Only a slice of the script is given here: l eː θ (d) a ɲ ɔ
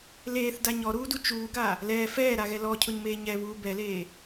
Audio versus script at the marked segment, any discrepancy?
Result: no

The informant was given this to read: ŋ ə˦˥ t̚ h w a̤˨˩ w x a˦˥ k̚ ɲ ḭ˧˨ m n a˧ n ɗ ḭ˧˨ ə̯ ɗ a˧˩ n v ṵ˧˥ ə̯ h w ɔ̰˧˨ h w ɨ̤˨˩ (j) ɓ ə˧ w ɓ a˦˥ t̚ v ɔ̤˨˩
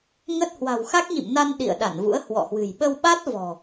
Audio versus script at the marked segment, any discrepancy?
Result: no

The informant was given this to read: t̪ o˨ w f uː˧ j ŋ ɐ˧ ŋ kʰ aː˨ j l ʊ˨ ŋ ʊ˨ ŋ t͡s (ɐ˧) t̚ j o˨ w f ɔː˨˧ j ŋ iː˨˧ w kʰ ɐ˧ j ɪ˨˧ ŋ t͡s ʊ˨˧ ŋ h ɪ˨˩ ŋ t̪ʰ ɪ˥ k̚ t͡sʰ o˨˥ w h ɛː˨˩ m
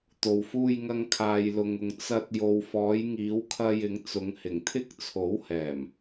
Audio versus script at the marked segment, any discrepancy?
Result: no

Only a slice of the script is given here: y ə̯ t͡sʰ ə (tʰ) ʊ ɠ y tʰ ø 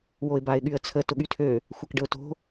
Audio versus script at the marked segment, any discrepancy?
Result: yes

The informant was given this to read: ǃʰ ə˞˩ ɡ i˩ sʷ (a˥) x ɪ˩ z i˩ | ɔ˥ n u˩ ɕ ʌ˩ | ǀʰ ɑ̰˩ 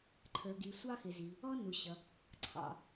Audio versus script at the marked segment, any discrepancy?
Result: yes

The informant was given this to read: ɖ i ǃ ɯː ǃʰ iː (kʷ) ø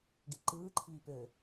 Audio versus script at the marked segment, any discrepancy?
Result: yes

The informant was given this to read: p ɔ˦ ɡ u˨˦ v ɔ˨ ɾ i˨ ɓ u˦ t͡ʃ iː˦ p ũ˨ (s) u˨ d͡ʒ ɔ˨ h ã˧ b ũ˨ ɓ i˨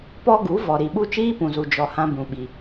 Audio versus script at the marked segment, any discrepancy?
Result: yes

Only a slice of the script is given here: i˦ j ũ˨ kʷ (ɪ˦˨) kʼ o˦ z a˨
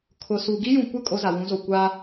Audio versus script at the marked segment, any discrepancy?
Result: no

